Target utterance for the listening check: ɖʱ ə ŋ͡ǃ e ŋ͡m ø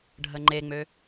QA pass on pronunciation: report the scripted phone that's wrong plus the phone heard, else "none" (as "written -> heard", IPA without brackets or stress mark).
none